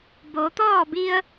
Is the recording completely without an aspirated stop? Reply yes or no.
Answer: yes